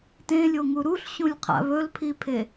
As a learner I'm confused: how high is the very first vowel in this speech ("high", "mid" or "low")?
mid